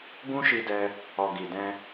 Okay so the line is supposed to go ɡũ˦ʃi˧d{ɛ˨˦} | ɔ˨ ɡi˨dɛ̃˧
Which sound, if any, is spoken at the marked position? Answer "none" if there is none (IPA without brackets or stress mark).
ɛ˧